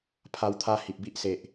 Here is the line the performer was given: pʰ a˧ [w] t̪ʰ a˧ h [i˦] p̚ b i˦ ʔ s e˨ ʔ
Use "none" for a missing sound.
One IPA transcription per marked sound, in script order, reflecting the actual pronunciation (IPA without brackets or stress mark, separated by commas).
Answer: w, i˨